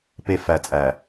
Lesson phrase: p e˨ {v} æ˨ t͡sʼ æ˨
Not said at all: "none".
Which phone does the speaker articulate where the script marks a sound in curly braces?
f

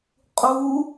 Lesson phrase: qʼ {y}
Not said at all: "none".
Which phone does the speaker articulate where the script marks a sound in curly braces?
u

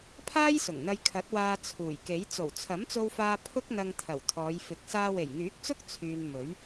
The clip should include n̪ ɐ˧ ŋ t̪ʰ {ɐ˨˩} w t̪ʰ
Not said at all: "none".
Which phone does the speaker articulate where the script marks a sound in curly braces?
ɐ˨˩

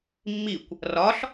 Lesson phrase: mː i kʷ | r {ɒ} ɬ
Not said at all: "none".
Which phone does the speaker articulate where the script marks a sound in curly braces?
ɒ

